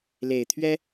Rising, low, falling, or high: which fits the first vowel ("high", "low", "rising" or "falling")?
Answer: low